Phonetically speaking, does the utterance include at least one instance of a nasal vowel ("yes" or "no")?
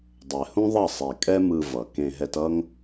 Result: yes